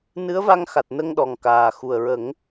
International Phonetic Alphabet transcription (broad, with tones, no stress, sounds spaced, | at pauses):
n ɨ˧˥ ə̯ v a˧ ŋ x a˨˩ t̚ n ə˧ ŋ ɗ ɔ˨˩ ŋ k aː˨˩ x u˨˩ ə̯ ɹ ə˨˩˦ ŋ